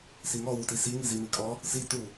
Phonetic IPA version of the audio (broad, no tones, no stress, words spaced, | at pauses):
siŋɔ wutisi ŋizimikʼɔ | si tu